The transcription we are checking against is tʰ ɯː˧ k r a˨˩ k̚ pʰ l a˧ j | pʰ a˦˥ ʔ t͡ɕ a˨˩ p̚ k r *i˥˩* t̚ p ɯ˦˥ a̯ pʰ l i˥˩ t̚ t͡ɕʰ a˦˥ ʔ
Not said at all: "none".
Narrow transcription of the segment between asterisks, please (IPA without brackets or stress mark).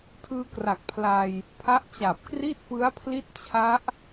i˥˩